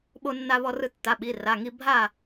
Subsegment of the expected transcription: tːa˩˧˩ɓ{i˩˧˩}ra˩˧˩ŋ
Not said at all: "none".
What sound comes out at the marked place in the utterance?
i˩˧˩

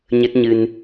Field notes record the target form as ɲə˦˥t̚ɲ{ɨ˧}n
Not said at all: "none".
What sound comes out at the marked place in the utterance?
ɨ˧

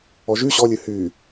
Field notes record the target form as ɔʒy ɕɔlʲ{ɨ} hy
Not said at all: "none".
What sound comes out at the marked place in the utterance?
ɨ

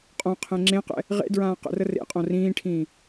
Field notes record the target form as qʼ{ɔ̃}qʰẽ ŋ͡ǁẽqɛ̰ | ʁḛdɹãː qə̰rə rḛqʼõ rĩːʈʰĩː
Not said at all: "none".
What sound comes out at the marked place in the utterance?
õ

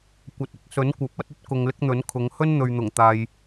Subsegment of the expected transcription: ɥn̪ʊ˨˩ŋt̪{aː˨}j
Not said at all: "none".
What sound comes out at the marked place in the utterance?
aː˨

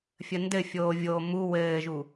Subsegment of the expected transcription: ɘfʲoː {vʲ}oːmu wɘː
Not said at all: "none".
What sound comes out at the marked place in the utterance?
vʲ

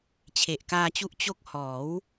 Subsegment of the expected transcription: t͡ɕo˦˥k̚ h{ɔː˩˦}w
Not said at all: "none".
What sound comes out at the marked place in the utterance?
ɔː˩˦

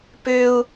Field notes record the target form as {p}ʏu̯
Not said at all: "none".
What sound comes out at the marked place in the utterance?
p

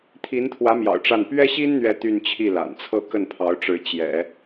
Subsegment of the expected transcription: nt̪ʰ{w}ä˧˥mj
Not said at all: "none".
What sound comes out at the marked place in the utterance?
w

